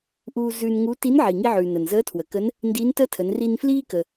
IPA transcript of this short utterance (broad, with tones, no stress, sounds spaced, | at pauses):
ʔ uː˧ z ʉː˧ n ŋ u˧˥ t i˧˥ n ʕ iː˩ ŋ i˧ ʕ ʉː˩ n ə˩ n z əː˧˥ tʰ w ə˩ k ə˧˥ n | n d iː˧˥ n t əː˥ tʰ ə˩˧ n r i˧ n f l iː˥ k ə˩